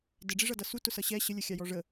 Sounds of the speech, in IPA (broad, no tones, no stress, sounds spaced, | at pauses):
d ɪ ɖ͡ʐ i ʐ ʌ d ʌ s u t ʊ s ʌ ɕ ɛ ɕ ə lʲ ʌ xʲ ɑ j ɔ ʐ ə